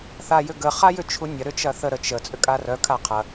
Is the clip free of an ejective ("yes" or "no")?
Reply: no